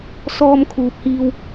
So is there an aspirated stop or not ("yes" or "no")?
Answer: yes